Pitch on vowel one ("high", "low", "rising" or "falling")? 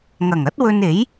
low